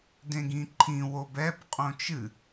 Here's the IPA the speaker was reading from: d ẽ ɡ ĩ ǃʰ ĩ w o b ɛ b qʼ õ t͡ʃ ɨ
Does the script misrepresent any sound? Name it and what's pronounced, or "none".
none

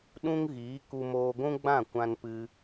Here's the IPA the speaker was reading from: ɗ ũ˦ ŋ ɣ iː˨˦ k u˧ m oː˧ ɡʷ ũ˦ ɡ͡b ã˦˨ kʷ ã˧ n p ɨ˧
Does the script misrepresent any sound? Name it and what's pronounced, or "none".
none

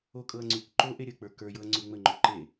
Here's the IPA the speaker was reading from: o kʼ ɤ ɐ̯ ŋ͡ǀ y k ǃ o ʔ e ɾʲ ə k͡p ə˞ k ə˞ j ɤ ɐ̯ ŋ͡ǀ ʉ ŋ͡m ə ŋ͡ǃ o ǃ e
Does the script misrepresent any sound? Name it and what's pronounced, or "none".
none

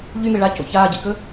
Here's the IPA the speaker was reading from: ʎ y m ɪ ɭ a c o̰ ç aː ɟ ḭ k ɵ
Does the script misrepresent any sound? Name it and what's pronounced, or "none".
none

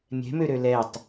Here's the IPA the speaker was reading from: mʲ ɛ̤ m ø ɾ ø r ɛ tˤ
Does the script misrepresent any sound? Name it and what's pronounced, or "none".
r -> l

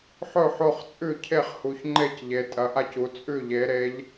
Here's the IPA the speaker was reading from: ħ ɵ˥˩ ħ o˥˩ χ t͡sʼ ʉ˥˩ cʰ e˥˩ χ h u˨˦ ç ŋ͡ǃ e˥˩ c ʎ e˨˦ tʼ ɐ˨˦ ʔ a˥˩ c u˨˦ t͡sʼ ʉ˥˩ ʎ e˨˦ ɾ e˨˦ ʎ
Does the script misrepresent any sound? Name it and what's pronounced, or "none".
none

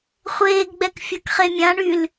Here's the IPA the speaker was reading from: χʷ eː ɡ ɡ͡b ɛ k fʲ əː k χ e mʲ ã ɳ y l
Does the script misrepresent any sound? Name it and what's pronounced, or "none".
none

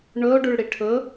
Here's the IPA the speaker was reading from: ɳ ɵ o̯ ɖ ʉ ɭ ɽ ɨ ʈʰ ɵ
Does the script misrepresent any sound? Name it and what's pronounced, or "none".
ɨ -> i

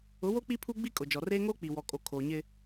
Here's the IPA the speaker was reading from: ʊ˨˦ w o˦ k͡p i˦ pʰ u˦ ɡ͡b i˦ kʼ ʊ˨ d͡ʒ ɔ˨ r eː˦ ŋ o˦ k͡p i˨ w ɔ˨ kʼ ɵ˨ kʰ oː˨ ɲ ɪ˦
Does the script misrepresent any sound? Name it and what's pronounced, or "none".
ɵ˨ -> o˨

